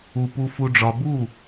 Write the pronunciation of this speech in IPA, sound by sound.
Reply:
u˨ pu˨fu˨ɖ͡ʐɒ˨bu˦˨

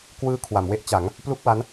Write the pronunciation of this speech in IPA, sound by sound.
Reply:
kwɯː˦˥ kʰwa˩˦mwe˦˥ʔt͡ɕa˩˦ŋ | plu˥˩k̚wa˦˥n

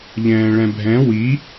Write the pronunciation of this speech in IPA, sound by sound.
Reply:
ʎɛ̃ːɭɛ̃bʱɛ̃ wi

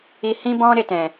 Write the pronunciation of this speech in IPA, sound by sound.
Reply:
i˧ hĩ˦bɔ̃˦ ɾe˧tɛ̃˨

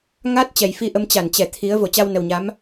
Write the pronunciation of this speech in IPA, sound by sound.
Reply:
ŋa˦˥t̚ t͡ɕɛ˨˩jfi˧ʔə˧m t͡ɕa˧˩nt͡ɕɛ˧˩ t̪ʰi˨˦ə̯ vo˧˩t͡ɕa˧wnə˨˩wɲa˨˦m

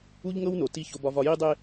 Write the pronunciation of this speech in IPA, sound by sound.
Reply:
u˦ʎŋɤ˦wno˨ ti˦ ço˦bɒ˦vɒ˦ ji˦dˤe˦

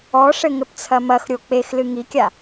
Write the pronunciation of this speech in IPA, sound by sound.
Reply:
ɔʂɘ ŋɘpt͡sʰɐmɐxɾʲo k͡pexlɨ ŋikʲa

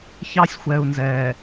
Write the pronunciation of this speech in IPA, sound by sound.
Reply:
çɑ˦sʲxʷɛː˨u̯nzɛː˨

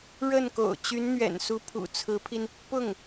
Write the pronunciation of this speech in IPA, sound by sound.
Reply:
ɻə˥˩n ko̰˨˩ʊ̯t͡ɕy˧˥nn̪ɥɛ̰˨˩n su˧˥pʰṵ˨˩ t͡sʰɹ̩˧˥pʰi˧n | pʊ˥˩ŋ

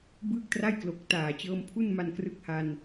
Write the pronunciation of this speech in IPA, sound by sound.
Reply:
bɯː˥˩k̚tra˥˩j klo˨˩k̚taː˨˩t͡ɕɤː˧m pʰu˥˩nma˧nkrɯ˦˥k̚ ha˧n

